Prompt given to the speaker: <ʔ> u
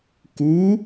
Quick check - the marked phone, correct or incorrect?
incorrect